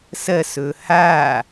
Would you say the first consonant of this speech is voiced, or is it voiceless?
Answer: voiceless